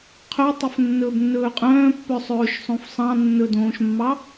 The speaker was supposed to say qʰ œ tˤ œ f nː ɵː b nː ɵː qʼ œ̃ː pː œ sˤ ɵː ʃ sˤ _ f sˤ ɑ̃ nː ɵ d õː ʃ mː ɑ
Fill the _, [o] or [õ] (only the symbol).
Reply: õ